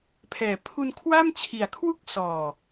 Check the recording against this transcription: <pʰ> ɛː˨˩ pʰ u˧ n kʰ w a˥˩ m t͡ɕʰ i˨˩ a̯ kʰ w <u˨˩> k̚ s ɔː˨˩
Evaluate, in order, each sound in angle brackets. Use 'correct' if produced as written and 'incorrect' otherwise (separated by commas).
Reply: correct, incorrect